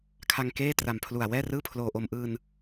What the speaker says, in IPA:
kʰa˧ŋkeː˥˩tra˨˩mpʰlu˨˩a̯ wɛː˥˩rɯː˥˩pʰloː˧ʔo˧m ʔɯː˧n

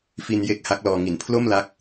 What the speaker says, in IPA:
fi˧nje˦˥k̚ ha˦˥k̚lɔː˧ŋi˨˩n pʰlo˥˩mla˦˥k̚

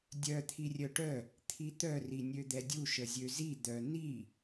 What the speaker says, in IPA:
dʲœ t̪ʰirʲœʈœ | t̪ʰit̪œ rinʲød̪ɛdʲu ʃəzʲøzi d̪œ ni

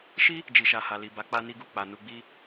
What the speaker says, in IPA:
ʃi˦ | d͡ʒi˨ʃa˨ ha˨li˨ba˨˦ k͡pa˧ ni˧ɡu˨k͡pa˨ nu˧ɡ͡bi˦

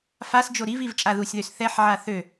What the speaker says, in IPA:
fasd͡ʒo ɾiviv t͡ʃʼaðusʲðøs θɛħʕa θø

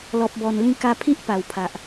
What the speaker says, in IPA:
lɔ˨p̚bɔ˨˩nlĩ˧ ka˧pʰi˦ʔ pa˨˩wpʰa˨ʔ

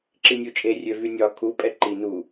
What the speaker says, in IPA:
ǁinʲut͡ʃʼe rʲøvynʲɒ kʰu pʼɛǃi nu

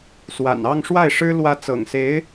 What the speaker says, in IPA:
swa̰˨˩n ɑ˥˧ŋʂwa˥˩ɪ̯ʂɻ̩˥ lwä˧˥t͡sɤ̰˨˩ŋse˧˥ɪ̯

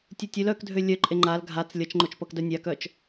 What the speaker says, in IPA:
tʲutʲøl œkdʱø lʲœǃʼe ŋ͡ǃal ɡʱat͡s lʲʌt͡ʃŋ͡ǃot͡ʃpʌk dœnʲakœt͡ʃ

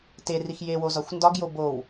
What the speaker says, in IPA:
terix jewozɒxʷ ndɒɡjo bow

